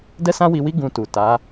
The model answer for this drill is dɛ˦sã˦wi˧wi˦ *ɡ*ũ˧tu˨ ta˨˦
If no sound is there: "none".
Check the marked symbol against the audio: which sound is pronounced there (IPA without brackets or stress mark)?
ɡ